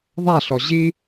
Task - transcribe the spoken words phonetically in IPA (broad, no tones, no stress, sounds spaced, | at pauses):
ðˤ a ɬ ɔ ʑ i